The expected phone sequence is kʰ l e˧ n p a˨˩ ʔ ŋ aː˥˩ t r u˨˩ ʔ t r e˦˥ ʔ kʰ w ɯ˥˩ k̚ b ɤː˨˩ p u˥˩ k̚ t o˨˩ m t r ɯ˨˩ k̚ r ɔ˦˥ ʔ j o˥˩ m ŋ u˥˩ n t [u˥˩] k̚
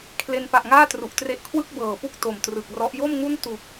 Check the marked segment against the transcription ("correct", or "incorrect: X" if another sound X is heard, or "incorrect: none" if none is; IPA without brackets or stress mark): incorrect: u˨˩